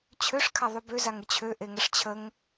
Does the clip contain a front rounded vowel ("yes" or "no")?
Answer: yes